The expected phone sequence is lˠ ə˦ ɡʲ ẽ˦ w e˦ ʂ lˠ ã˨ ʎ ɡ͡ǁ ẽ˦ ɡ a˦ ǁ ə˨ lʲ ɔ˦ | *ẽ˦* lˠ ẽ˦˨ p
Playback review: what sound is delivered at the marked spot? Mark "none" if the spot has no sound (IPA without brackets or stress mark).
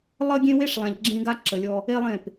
e˦